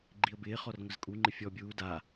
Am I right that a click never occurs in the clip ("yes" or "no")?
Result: no